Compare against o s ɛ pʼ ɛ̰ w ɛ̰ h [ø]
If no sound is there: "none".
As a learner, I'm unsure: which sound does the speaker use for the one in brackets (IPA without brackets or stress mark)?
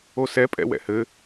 ɘ